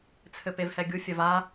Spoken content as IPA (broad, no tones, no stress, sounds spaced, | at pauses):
t͡sʰ ɘ p e v h ɛ ɡʲ u fʲ ɐ v a